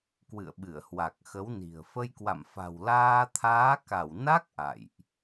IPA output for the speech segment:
k w ɨ̰˧˨ ə̯ ɓ ɨ˧˩ ə̯ h w a˨˩ k̚ x ə˨˦ w n i̤˨˩ ə̯ f ə˧ j k w a̰˧˨ m f a̤˨˩ w l aː˧ t̪ʰ aː˨˦ k a˧˩ w n a˦˥ k̚ ʔ a̰˧˨ j ʔ

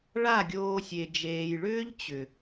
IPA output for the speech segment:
ɭ a˦˨ ɡʲ oː˧ sʲ e˨ d͡ʒ eː˨ j ɭ ʏː˦ ʎ t͡ɕ ʏ˨

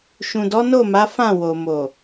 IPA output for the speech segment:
ʃ ũ˨ d ɔ˨˦ n o˦˨ m a˨˦ f ã˦˨ w o˨ m o˨

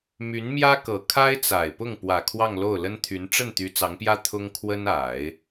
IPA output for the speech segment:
m y˧˥ n m j ä˥ k ɤ˨˩ kʰ a˥ ɪ̯ t͡s a˨˩ ɪ̯ p ʊ˥˩ ŋ p w ä˨˩ kʰ w ɑ˥˧ ŋ l o˥˩ ʊ̯ l ə˥ n t̪ʰ y˧˥ n ʈ͡ʂ ə˥˩ n t̪ y˧˥ t͡s ɑ˧˥ ŋ p j ä˥ t̪ʰ ʊ˥ ŋ kʰ w ə˥ n a˨˩˦ ɪ̯

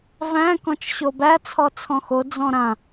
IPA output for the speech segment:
v æ̃ k ɔ̃ t͡ʃ ɕ o b æ t͡sʰ ɔ t͡sʰ ɔ̃ x o d͡z ɔ̃ ɾ ã

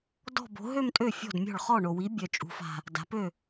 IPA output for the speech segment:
d ɔ̤˥˧ b o̤˨˥ ɦ ø˥˧ m tʼ ø˥˩ fʲ ɔ̤˥˩ d mʲ ɔ̤˥˩ ɭ χ ɔ˥˩ ɳ o˨˩ w i˨˥ bʲ œ˨˩ t͡ʃʼ ṳ˩˧ f a̤˨˩ | d a̤˩˧ p ø˥˩

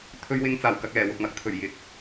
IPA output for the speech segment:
t̪ʰ ɵ˧ ɥ w ɪ˧ ŋ t͡s aː˨˩ w k ɐ˧ k̚ l ɛː˨˩ w ʊ˨ k̚ m ɐ˨˥ k̚ t̪ʰ ɵ˨˩ ɥ j ɪ˨˥ k̚

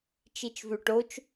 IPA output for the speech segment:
t͡ʃ i t͡ʃ v ʉ ʈ o t͡ʃ

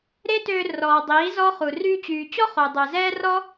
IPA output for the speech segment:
ɾ e˦ t øː˧ r ɔː˨ dˤ iː˨˦ z ɔ˦ χ u˨ r yː˧ t͡ɕ yː˨ t͡ɕ ɔ˦ χ o˨ dˤ œ˨ z ɛː˦ r ɔ˦

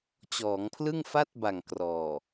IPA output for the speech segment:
t͡ɕ ɔː˩˦ ŋ pʰ l ɯ˥˩ ŋ f a˥˩ t̚ b a˨˩ ŋ k r ɔː˨˩

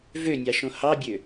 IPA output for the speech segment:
v ø nʲ ɑ ʃ õ h ɑ bʲ ø

